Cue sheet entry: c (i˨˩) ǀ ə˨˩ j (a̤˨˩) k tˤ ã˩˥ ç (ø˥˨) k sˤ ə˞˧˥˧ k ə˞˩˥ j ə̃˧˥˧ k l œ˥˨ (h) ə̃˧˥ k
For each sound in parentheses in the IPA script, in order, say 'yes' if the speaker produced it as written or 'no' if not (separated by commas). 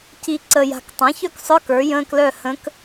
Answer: yes, yes, no, yes